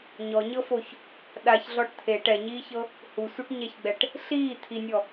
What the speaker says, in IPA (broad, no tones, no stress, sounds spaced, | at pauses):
ɲ ɔ ɲ ɤ f o ç | ɗ a ç ɮ ɔ ʈ t̪ʰ e ʈ ɛ ɲ iː ç ɤ | h u sʷ e ʈ ɲ ɛ ç ɡ͡b ɛ ʈ | ɬ iː t̪ʰ i nʲ ɔ